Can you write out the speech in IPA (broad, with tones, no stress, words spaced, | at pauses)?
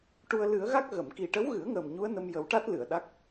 ʈu˧ə̯ lɨ˨˩˦ə̯ɣa˦˥k̚ ɣə˨˩˨mki˨˩ʈə˧˥wɣɨ˨˩˦ə̯ ŋəː˨˩mɲu˧˥ə̯nə˧m jə˨˩˦wʈa˦˥t̚ lɨ˨˩˨ə̯ɗa˦˥k̚